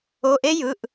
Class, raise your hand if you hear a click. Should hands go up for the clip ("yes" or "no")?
no